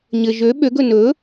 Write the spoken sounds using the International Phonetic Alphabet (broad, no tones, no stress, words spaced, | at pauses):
ɲɘ ʒø ɓøɡɵ nɵ